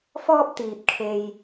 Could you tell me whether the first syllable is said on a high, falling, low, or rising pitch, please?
high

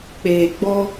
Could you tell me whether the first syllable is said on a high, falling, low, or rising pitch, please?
low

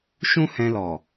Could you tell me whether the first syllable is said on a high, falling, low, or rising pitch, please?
high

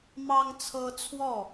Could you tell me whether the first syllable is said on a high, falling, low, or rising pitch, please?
high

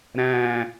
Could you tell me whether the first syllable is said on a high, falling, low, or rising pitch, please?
falling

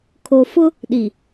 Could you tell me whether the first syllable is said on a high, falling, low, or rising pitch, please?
low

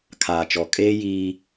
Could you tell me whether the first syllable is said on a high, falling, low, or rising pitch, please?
low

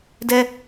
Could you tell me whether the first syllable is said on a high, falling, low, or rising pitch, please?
high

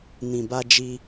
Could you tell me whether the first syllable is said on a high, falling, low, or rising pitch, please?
low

